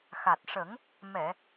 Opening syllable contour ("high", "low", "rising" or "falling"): low